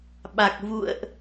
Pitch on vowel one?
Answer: low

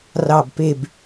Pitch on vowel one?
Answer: low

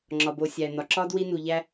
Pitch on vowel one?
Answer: low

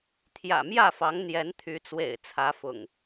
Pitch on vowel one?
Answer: low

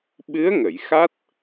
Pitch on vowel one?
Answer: rising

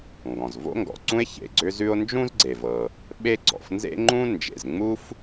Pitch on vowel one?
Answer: low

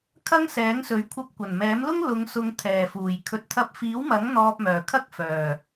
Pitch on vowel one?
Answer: high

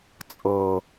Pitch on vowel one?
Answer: low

